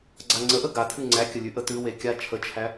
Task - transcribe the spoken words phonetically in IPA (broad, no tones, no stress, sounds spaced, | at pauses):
ɡ͡ǀ a ŋ͡ǀ ə ʔ ə ɡ a tʰ ʉ ŋ͡ǀ æ kʲ ə lʲ ʉ ʔ ə t ʉ w e kʲ a t͡ʃʰ ə t͡ʃʰ æ